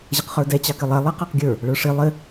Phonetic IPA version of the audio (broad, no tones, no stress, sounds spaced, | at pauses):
ʑ ə q χ ə˞ d ɛ t͡ɕ ɑ k ɪ lˠ ɛ lˠ ɛ q ɑ q ɡʲ ə˞ | ɭ ə˞ ʂ i lˠ ɪ